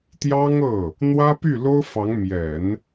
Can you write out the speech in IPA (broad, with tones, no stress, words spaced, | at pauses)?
t̪jɑ˥ŋɤ˥˩ | n̪wä˥py˥˩lo˥ʊ̯fɑ˧˥ŋ mjɛ˨˩˦n